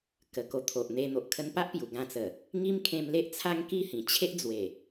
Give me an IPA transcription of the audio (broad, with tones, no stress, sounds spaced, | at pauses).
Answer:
k ə˨˩ k o˨˩ t̪ʰ o˨ ʔ n̪ e˧ n̪ o˨ ʔ kʰ ə˧ n p a˦ ʔ p j u˨˩ ɡ ã˧ t͡s ə˨˩ | ŋ i˦ m kʰ ẽ˧ m l e˦ ʔ t͡sʰ a˦ ŋ k i˥˧ h ĩ˨˩ t͡ɕʰ e˦ ʔ d͡z w e˨˩